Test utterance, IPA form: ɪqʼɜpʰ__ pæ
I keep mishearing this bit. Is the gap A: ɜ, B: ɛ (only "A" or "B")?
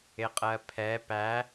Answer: B